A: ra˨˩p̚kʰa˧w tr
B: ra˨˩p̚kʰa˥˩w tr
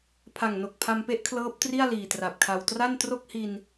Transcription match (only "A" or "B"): A